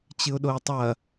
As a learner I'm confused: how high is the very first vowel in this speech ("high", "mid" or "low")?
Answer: high